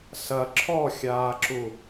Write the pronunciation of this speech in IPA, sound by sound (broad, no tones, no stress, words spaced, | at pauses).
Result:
sɐ ǁʰɔxʲaːǁu